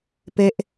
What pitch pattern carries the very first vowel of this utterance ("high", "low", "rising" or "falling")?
falling